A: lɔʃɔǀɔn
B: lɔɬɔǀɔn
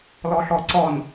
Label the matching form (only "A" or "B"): B